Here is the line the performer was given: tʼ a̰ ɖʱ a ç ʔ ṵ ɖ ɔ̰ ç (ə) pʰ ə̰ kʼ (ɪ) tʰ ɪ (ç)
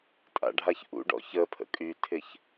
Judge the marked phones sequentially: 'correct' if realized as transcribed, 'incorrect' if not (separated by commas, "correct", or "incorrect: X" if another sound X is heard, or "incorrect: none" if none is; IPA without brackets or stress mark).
correct, incorrect: y, correct